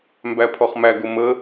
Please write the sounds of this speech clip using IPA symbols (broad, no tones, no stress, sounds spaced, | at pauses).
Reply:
m b æ pʰ ɔ χ m æ ɡ ʊ m ə